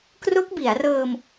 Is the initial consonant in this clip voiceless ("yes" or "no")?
yes